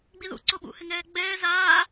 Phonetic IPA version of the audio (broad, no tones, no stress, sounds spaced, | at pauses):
ɡ͡b i ð ṵ ǀ o ɓ ṵ h ɪ ŋ ɛː ɡ͡b ɛː z aː